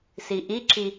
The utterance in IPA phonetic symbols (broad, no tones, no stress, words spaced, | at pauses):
siʔiǁi